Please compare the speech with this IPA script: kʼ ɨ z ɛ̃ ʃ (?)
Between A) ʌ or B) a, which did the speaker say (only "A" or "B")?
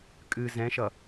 A